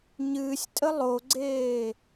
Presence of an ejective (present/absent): present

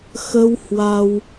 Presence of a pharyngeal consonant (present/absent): absent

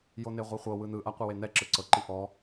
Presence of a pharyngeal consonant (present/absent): absent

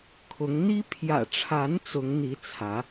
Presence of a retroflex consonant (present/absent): present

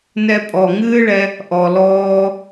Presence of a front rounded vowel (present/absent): absent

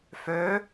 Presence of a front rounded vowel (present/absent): present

